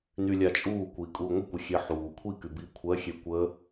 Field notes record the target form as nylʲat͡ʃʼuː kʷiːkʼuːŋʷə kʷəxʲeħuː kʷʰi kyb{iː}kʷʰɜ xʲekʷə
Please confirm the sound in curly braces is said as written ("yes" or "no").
yes